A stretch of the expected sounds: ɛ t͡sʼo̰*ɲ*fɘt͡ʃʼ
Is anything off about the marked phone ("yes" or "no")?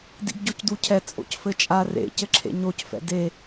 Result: yes